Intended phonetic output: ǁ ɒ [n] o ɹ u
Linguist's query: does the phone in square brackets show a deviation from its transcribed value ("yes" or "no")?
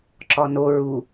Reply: no